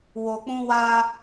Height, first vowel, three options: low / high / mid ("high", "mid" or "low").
mid